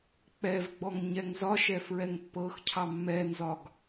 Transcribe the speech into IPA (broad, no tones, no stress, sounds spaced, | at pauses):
k͡p ɛ v ɡ͡b ɔ ŋ ɲ ɛ ŋ z ɒ ʃ ɛ f ɹ ɛ ŋ pː ɤ x cʰ ɑ mː ɛ n z ɒ ɡ